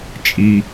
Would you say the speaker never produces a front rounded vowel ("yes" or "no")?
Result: yes